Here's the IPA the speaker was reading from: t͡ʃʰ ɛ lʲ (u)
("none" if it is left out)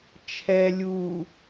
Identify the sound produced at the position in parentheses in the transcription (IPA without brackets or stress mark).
u